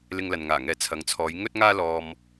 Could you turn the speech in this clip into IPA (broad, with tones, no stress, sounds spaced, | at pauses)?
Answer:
l ɪ˧ ŋ l ɐ˨ n ŋ aː˨˩ ŋ ɛː˨ t͡sʰ ɐ˨ ŋ t͡sʰ ɔː˨˧ j ŋ ɵ˥ t̚ ŋ aː˥ l ɔː˧ m